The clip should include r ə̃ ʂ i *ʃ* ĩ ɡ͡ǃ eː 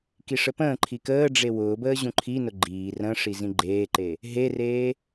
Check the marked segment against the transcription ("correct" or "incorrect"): incorrect